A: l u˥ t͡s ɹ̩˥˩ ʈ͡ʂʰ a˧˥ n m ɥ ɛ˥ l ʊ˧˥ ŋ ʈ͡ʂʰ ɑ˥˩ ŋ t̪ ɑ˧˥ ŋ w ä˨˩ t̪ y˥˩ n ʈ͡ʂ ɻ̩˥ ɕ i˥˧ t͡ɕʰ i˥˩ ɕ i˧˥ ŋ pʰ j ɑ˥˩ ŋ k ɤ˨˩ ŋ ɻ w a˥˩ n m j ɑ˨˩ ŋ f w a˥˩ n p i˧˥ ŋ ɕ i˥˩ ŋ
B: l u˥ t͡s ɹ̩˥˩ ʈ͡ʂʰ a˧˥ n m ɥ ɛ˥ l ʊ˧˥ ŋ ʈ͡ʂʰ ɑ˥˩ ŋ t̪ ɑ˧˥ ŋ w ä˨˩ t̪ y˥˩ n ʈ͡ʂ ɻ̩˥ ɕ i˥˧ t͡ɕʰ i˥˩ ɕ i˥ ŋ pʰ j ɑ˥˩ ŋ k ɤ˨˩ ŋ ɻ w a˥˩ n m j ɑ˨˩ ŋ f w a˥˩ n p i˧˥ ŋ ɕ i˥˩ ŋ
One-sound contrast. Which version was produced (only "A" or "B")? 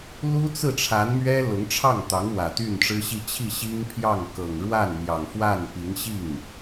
B